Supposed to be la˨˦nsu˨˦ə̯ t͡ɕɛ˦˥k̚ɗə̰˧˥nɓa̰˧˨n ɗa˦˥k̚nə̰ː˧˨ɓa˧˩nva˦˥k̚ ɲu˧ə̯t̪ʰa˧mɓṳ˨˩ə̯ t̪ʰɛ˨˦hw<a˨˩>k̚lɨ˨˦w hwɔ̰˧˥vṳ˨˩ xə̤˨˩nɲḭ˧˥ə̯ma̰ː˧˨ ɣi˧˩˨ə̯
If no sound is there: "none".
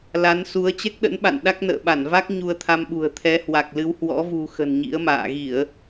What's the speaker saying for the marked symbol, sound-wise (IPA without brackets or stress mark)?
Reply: a˨˩